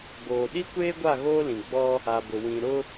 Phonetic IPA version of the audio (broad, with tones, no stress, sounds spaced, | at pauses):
b oː˨ ɗ i˦ kʷ eː˦ ɡʷ a˦˨ ɣ oː˦ l ĩ˨ ɡ͡b ɔ˦ | a˨ b ʊ˨ w ĩ˨ ɾ ʊ˦